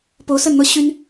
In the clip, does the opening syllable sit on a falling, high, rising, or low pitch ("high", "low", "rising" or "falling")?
rising